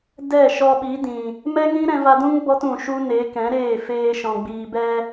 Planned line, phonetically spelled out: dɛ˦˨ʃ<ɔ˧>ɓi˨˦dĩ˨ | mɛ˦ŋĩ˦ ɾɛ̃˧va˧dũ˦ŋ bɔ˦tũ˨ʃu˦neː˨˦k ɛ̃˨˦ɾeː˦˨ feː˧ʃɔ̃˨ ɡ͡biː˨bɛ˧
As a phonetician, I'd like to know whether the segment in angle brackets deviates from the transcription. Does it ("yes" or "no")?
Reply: no